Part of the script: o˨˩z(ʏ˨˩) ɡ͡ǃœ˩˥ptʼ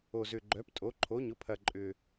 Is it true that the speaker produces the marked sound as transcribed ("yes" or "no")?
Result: yes